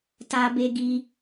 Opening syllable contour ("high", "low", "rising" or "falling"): high